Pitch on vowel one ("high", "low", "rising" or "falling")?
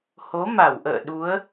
rising